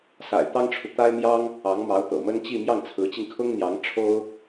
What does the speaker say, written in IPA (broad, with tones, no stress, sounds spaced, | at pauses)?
s a̰˨˩ ɪ̯ t̪ ɑ˥ ŋ ʈ͡ʂʰ u˨ t̪ a˥ ɪ̯ m j ɑ˥ ŋ | ɑ˧˥ ŋ m ɑ˧˥ ʊ̯ t̪ ɤ̰˨˩ m ə˥ n t͡ɕ i˥˧ m j ɑ˥˩ ŋ t͡sʰ ɹ̩˧˥ t͡ɕ i˧ ŋ kʰ ʊ˥ ŋ n̪ j ɑ˧˥ ŋ ʈ͡ʂʰ o˥ ʊ̯